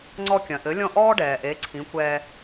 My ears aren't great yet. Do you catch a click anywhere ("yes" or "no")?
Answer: yes